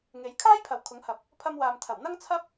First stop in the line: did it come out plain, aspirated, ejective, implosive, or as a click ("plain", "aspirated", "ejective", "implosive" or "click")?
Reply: aspirated